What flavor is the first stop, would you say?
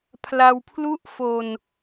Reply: aspirated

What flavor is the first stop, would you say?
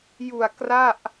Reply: plain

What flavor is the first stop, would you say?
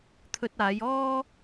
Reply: aspirated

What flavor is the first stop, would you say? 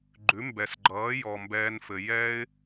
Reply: click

